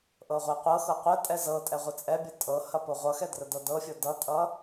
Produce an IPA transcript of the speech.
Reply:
ʔ ɤ ʁʷ ɛ qʷ ɤ x ɤ qʷ ə tʼ ɛ z ɤ tʼ ɛ ʁʷ ə t͡sʼ ɛ bʲ ɤ tʼ ɤ h ɐ p o ʁʷ ʌ x ɛ d r ə d ɤ d ɤ fʲ ɤ d ʌ tʼ ʌ

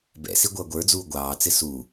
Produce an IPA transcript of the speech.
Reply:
b ɛ̰ s i ɡʷ ʌː ɡʷ ə˞ d͡z uː ɡʷ ɑː t͡s ɪ s u

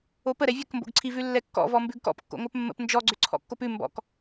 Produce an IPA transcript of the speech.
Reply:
o p ə ɾ ɛ vʲ ə k m b o̰ ɡ ǀʰ i v ʉ lː ɛ kː ɔ̰ v ɔ m b ʉ ɡ k ɔ̰ p kː o̰ ŋʷ ɜ p mː ə̰ p n d͡ʒ ɔ ɡ͡ǀ ʏ ǀʰ ɔ̰ kː o p ʉ m b ɔ̰ k

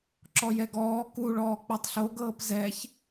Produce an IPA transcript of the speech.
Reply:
ǁ ɔ j ɛ ɡ ɔː k u ɭ ɔː k͡p ɤ tˤ ɬ o ɡ ɤː p z ɛ ç

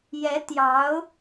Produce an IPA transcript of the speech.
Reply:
j ɛ˧˥ t̪ j ɑ˧˥ ʊ̯

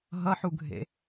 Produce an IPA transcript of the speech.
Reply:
ɦ ʌ ħ u ɡʱ ḛ

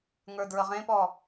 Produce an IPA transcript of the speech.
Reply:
ŋ ə˞ d ɹ ə ʁ ẽ p ɔ

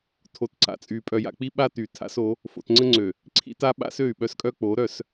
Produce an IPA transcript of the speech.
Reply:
tʰ o˨ t ǀ a̰˨ t͡sʼ y˨ pʼ œ˨ j a̰˨ k͡p i˦ ɓ a˦ t y˨ tʰ a̰˦ s o˨˦ | f o̰˨ t ŋ͡ǀ ə˦ ŋ͡ǀ ø˨ | ǀʰ ḭ˦ t a˦ ɓ a̰˦ s ø˦˨ y̯ ɓ œ˦ s kʼ œ˦ k͡p o˨˦ ɾ œ˦˨ s

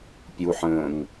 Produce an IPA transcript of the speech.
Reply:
pʲ u ħ ə̃ː ŋ

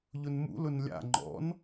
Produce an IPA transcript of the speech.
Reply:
ʎ ʊ n m ṵ l ʊ n lʲ a̰ ŋ͡ǃ ɔ̰ n

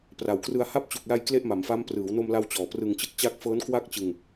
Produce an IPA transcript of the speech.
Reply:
p r a˩˦ w k r ɯ˧ a̯ h a˦˥ p̚ t͡ɕ u˨˩ k̚ l a˧ j k l e˥˩ ʔ m a˩˦ m f a˦˥ m p r ɯː˩˦ w n o˧ m l a˧ w t͡ɕ ɔː˩˦ p r ɯ˧ ŋ t͡ɕ ɯ˦˥ k̚ t͡ɕ a˥˩ k̚ f ɤː˦˥ n k w a˥˩ k̚ t͡ɕ ɯ˧ ŋ

